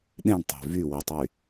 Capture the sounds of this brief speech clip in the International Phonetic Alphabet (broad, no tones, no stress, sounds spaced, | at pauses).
ɗ ẽ ɳ tˤ e̤ v y w i tˤ y